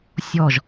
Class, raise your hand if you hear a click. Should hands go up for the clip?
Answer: no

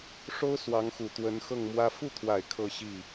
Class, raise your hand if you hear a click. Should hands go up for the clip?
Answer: no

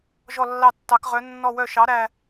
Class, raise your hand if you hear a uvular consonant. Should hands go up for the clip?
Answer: yes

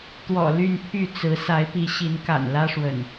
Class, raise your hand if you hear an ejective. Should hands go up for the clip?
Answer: no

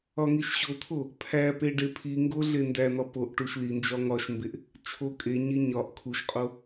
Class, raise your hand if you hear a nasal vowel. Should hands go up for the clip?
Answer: no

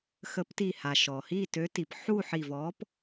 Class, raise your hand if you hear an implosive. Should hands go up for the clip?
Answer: no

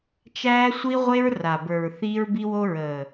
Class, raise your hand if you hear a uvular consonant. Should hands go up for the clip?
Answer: yes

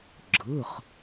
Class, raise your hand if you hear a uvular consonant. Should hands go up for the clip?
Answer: yes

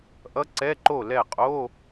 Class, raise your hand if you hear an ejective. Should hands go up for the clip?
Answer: yes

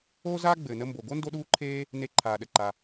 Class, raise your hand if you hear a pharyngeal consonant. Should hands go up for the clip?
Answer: no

